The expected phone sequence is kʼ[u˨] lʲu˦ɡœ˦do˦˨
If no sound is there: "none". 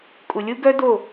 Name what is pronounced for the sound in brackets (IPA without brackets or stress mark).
u˨